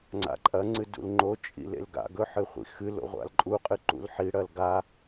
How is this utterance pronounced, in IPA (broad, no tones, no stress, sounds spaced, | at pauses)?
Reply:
ŋ͡ǀ a̰ ǃʼ ɐ ŋ͡ǀ ɨ d ṵ l ŋ͡ǃ o t͡ʃʼ ḭ l ḛ l ɡ a̰ ɡ ɵ ħ ɨ χʷ ḭ x ɨ l o̰ ʁʷ a̰ l ǃʼ u qʼ ɨ ǃ ṵ l ħ i ɽ ɐ l ɡ a